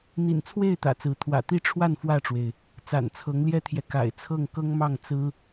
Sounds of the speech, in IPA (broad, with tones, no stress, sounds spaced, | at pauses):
n̪ ḭ˨˩ n t͡sʰ w e˥˨ ɪ̯ t̪ ä̰˨˩ t͡s ɹ̩˨˦ t̪ʰ w ä̰˨˩ t̪ i˥˨ ʈ͡ʂʰ w a˥˨ n f w ä˥˨ ʈ͡ʂ w e˩ ɪ̯ | t͡s a̰˨˩ n t͡sʰ ɤ˨˦ ŋ l j ɛ˦ t̪ʰ j ɛ˨ k a̰˨˩ ɪ̯ t͡sʰ ɤ˥˨ ŋ k ɤ˦ ŋ m ɑ˥˨ ŋ t͡s ɹ̩˦